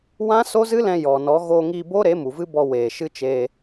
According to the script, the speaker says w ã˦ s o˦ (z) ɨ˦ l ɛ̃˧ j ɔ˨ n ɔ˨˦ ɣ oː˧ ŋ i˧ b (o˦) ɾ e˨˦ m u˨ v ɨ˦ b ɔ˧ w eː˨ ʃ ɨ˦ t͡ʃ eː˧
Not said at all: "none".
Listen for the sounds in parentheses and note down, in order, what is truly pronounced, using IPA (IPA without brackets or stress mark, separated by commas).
z, o˦